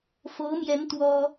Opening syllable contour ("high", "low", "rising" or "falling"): rising